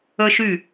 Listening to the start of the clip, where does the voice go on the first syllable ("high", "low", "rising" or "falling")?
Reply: high